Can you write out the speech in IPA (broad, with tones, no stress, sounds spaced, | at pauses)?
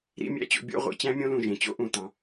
ɾ ḭ˥˧ mʲ æ̰˥ t͡ɕ o̰˧ bʲ o̰˥˧ ʁʷ ḭ˩˧ t͡ɕ æ̃˥ mʲ õ˥ l ũ˧˩ ʒ ẽ˩˧ t͡ɕ o̰˥ ʔ ũ˧˩ t ɑ̃˩˧